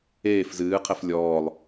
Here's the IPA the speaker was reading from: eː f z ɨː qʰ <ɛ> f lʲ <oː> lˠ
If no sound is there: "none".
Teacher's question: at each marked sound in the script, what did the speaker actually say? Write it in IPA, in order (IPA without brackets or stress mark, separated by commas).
ɛ, ɔː